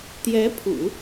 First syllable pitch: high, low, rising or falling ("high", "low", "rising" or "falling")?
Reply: rising